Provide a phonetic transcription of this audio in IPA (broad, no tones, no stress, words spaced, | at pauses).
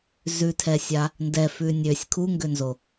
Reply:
zʉtʰɛsʲa | ndɛfʉ nʲøsʲ kʰuŋɡønzo